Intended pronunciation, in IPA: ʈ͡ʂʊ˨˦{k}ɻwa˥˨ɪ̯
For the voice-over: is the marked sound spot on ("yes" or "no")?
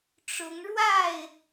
no